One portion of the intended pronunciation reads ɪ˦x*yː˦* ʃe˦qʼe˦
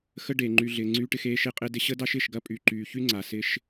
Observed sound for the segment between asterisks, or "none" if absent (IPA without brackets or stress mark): eː˦